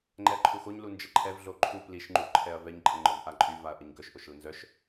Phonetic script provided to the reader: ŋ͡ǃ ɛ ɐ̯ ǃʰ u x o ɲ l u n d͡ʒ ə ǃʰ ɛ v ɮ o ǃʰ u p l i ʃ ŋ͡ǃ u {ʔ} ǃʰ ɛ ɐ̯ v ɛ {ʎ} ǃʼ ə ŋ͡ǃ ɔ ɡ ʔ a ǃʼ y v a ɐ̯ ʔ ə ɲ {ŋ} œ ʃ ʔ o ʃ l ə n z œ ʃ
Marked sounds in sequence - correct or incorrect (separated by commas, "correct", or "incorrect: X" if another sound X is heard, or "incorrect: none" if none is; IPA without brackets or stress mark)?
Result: correct, incorrect: ɲ, incorrect: ɡ